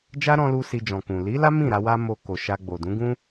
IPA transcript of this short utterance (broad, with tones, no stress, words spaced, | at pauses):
d͡ʒa˦ɾɔ̃˧lu˧ si˧d͡ʒɔ̃˨kũ˨ li˨˦la˦ mĩ˦˨ɾa˧ wa˦mo˧ ko˨ʃa˧ɡ͡bo˨ dũ˨˦ɡũ˦